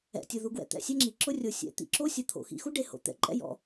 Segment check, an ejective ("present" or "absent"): present